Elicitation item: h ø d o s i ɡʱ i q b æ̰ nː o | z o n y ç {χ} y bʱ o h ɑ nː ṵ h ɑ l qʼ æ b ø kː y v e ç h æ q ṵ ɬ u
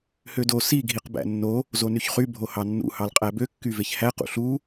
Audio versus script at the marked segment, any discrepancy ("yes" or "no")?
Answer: no